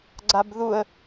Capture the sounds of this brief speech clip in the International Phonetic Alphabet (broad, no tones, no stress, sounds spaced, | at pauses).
ɡ͡ǀ a b ð u ə̯